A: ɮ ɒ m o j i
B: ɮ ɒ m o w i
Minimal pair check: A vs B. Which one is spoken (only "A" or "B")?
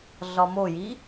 A